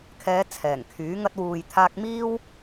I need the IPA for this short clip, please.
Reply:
kʰɛː˨˧ t͡sʰɛː˨˩ŋkʰyː˨˥ ŋɐ˧t̚wuː˨jt̪ʰaː˧k̚miː˥w

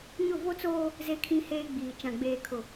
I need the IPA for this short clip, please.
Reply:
ɲʊ˦˨vo˦t͡soː˦ | ze˦kʰĩ˦heː˦ ɡ͡biː˨ t͡ʃã˨ɡ͡beː˨kʰʊ˨

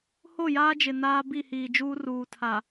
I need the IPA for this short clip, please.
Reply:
ho˦˨jaː˦d͡ʒɪ˨ naː˦bi˦˨hiː˨d͡ʒuː˦ ruː˨tʰa˨

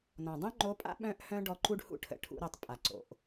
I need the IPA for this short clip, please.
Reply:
nɔ̃˩dˤœ̃˥ŋ͡ǃo˧˥pʼa̰˥ ɓœ̃˥ʔhœ̃˥ ɖɔ˧˥ǃu˥ɖhṵ˥ʈʰə̰˩˧ ʈʰṵ˧˥ɾœ˧tˤ pʼa˩ ǀo̰˩ʔ

